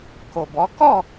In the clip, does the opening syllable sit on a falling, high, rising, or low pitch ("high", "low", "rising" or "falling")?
low